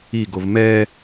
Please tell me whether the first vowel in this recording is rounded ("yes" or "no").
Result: no